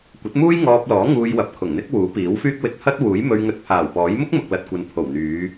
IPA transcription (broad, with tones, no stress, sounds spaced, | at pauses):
kʷ ɐ˨˥ t̚ m uː˥ j ŋ ɔː˧ p̚ l ɔː˨˥ ŋ uː˧ j w ɐ˨ p̚ kʰ ʊ˨˩ ŋ n̪ ɪ˥ k̚ w uː˨˥ p iː˨˥ w f yː˥ k̚ w ɪ˧ k̚ h ɐ˥ t̚ w uː˨˥ j m ɵ˧ ɥ ŋ ɵ˧ t̚ pʰ aː˨˩ w p ɔː˨˥ j m ʊ˥ k̚ m ʊ˨ k̚ l ɐ˨ t̚ kʷ ɐ˨ n pʰ o˨˩ w n̪ yː˨˧